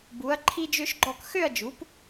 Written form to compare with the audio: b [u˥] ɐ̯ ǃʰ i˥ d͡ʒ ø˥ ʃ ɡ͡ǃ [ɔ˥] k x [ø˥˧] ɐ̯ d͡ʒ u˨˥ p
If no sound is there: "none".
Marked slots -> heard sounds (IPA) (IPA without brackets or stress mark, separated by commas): u˨˥, ɔ˥˧, ø˥˧